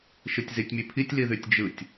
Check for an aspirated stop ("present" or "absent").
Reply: present